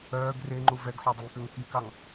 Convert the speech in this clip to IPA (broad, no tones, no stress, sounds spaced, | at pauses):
œː ɡ r e ŋ͡ǃ u v ɛ ɡ ħ ɔ dˤ y ŋ k ø ŋ k i k ɑ ŋ